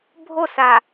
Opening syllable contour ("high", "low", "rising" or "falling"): falling